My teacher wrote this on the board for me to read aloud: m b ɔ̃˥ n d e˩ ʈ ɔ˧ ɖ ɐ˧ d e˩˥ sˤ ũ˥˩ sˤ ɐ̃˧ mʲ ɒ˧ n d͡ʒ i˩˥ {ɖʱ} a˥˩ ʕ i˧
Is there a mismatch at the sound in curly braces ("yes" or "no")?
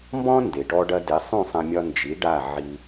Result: yes